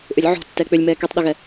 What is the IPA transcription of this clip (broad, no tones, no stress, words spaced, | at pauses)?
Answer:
ʔʏlʲʕɔ̤ tːɛk͡pʏlʲmɛː kitˤɗʏɣɛ